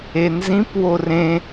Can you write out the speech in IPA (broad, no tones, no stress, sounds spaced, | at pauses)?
e n z ĩ p w o r ẽ